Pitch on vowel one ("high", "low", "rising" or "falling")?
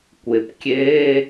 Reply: low